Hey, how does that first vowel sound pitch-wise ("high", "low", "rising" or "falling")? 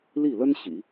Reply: falling